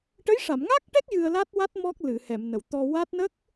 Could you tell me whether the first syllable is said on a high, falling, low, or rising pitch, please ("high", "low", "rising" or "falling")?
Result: rising